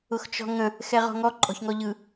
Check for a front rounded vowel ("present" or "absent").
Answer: absent